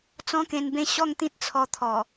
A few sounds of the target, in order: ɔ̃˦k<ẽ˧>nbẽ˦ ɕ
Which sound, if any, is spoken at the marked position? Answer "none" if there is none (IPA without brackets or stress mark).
ẽ˧